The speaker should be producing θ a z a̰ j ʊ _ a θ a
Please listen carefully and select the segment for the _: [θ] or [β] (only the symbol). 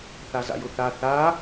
θ